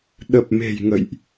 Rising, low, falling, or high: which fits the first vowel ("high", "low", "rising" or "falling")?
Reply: low